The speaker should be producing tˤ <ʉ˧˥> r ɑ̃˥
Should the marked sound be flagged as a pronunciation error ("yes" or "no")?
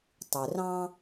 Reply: yes